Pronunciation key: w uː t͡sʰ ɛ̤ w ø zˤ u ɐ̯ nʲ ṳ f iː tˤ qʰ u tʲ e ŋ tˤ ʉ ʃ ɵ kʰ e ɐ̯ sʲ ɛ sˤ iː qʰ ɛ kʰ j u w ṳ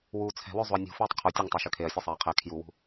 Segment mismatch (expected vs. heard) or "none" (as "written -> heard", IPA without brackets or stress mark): none